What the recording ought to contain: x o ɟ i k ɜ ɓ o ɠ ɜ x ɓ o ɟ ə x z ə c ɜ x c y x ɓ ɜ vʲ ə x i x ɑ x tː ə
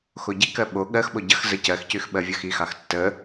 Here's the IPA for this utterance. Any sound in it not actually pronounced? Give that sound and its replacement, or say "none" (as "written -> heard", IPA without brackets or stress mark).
none